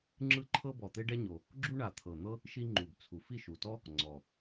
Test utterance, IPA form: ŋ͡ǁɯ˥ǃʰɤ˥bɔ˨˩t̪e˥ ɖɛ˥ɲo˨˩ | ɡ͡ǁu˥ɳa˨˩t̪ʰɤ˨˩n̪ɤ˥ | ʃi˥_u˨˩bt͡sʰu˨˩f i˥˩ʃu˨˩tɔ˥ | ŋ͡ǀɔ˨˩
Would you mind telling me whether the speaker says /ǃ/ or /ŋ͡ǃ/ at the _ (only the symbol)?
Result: ŋ͡ǃ